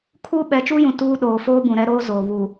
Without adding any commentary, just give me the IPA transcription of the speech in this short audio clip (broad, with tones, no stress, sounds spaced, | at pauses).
kʰ uː˦ ɓ ɛ˨˦ t͡ʃ uː˦ j ũ˨ t uː˦ ɗ oː˨ f oː˦ b ũ˨ ɾ ɛ˦ ɾ oː˦ z oː˨ β u˨